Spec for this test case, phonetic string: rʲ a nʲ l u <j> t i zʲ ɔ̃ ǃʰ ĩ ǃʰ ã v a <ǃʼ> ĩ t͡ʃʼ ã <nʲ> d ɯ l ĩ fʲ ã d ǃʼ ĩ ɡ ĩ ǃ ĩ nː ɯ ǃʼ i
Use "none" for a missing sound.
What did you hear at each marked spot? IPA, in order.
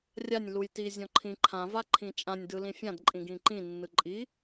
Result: j, ǃʰ, nʲ

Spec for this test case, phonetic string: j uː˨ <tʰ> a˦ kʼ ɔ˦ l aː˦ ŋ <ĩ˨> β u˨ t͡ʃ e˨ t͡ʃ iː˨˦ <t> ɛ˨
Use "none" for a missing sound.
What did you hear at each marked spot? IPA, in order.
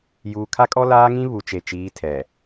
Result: kʰ, ĩ˦, tʰ

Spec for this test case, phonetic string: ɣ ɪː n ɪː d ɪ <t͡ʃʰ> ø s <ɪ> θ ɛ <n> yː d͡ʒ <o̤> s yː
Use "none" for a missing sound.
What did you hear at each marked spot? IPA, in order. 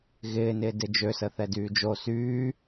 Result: d͡ʒ, ə, d, o

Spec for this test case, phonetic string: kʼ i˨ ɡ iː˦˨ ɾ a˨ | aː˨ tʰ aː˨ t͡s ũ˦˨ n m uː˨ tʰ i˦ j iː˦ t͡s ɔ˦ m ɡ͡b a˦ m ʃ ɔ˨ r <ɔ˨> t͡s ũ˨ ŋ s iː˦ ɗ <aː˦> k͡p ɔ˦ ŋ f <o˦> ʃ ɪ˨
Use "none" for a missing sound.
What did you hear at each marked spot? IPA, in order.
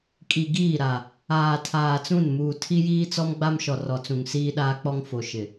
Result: ɔ˨, aː˦, o˨

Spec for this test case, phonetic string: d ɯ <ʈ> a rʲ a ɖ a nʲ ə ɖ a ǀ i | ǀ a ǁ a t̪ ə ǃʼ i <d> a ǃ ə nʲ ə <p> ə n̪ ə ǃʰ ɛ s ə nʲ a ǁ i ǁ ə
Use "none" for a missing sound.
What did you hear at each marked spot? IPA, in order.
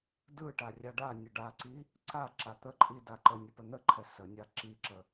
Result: ʈ, d, p

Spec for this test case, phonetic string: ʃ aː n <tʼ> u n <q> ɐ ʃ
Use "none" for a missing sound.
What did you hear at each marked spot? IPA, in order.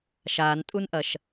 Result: tʼ, ʔ

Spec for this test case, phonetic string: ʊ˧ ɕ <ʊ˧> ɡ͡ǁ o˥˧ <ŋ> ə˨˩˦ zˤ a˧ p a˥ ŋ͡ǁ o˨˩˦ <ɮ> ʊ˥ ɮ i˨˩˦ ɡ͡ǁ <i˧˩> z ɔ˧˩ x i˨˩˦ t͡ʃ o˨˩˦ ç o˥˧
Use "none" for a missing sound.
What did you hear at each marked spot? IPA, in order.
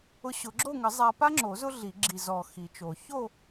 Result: ʊ˨˩˦, ŋ, z, i˧˩

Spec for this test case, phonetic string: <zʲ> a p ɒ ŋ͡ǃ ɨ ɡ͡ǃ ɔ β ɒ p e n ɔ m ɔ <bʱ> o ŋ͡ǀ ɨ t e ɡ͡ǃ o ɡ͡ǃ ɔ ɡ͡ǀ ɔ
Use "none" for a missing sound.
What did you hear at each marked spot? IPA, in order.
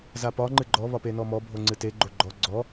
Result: z, bʱ

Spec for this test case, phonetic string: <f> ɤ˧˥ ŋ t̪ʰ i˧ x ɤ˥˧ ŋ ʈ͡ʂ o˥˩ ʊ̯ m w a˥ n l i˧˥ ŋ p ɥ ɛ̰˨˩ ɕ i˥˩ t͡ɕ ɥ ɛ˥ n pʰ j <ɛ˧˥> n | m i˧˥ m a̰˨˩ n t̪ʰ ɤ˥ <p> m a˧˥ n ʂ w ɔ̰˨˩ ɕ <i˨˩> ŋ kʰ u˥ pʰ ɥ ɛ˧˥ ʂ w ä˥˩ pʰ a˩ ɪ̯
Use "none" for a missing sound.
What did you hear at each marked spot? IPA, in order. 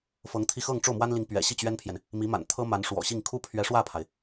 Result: f, ɛ˨, none, i˥˩

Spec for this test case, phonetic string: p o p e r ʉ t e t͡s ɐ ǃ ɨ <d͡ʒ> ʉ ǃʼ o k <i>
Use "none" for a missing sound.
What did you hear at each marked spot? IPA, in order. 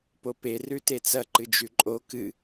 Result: d͡ʒ, ɨ

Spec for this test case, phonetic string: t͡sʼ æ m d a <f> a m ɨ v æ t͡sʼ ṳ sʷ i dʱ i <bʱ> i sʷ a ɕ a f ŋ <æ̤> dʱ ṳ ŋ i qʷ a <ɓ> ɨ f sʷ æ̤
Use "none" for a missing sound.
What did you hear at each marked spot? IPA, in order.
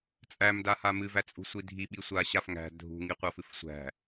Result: h, ɓ, æ̤, f

